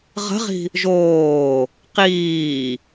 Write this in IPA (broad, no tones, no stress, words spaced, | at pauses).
ʁə̤ʁi̤ | ʒoː | qiː